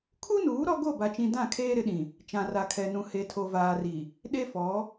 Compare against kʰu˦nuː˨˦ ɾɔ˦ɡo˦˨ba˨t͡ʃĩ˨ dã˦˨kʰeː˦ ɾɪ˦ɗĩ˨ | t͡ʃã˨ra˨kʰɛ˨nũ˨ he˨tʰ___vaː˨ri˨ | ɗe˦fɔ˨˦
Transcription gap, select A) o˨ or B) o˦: A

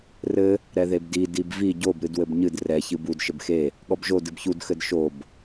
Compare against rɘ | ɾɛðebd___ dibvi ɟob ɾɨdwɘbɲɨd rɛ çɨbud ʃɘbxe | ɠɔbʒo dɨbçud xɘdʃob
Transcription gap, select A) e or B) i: B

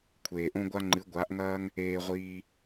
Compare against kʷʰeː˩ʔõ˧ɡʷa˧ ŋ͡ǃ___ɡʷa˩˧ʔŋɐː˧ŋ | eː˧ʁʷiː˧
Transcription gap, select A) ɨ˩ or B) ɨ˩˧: B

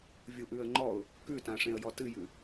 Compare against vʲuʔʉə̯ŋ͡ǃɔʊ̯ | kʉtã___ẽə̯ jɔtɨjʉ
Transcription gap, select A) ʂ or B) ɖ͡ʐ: A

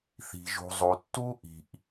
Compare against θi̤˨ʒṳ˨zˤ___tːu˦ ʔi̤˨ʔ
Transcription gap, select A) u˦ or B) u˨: B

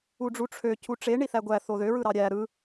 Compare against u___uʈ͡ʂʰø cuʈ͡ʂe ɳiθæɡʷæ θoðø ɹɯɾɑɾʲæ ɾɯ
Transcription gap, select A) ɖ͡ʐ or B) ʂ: A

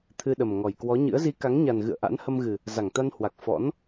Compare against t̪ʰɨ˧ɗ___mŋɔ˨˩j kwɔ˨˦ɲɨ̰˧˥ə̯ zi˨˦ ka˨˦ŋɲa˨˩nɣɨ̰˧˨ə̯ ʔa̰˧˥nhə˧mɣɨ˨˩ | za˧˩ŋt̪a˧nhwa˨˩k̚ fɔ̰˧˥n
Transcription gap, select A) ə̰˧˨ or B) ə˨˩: B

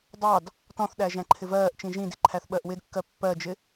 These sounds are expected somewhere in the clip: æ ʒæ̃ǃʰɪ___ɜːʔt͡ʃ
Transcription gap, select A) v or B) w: A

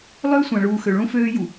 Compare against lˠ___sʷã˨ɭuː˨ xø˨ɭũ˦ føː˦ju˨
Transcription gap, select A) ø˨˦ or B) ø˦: B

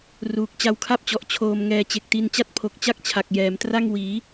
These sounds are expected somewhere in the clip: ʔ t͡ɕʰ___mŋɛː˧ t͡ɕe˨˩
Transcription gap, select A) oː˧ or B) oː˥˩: A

